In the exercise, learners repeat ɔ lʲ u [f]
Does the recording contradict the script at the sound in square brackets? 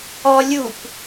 yes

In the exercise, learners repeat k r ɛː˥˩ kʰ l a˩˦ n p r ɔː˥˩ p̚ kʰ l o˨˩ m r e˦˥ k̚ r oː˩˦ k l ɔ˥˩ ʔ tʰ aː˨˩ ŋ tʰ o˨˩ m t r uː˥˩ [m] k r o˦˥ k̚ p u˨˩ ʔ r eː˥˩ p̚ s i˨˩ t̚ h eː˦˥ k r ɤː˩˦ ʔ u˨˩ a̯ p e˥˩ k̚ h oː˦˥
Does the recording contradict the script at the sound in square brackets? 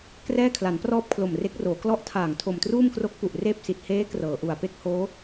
no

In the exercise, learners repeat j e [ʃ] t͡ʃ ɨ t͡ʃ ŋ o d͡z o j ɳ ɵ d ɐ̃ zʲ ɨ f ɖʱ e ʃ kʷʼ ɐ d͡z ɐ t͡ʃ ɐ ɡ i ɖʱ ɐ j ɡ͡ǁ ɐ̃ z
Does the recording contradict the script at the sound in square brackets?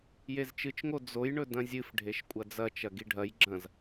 yes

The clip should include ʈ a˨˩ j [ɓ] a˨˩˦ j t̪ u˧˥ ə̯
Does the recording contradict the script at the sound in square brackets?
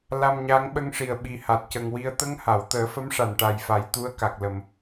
yes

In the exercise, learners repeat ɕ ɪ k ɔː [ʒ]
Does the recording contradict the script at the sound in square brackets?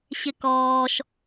yes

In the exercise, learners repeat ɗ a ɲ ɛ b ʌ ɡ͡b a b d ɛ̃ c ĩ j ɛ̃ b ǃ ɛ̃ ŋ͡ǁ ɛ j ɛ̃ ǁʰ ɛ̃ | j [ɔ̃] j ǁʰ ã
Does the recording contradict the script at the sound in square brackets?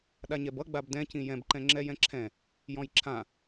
no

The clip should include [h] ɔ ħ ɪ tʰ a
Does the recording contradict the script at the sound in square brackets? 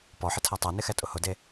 yes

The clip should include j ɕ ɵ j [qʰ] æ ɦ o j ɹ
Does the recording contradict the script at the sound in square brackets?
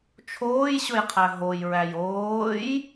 no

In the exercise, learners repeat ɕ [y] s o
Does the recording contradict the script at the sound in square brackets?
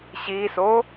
yes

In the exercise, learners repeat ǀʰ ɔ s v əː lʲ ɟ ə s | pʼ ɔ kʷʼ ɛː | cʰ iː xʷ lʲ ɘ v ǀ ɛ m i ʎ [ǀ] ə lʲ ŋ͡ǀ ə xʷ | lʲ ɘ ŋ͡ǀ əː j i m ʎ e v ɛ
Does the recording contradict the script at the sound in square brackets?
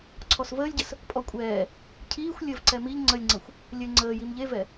yes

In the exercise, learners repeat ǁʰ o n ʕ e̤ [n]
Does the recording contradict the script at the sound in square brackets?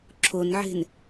no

